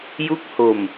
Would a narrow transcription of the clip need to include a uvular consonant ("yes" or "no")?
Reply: no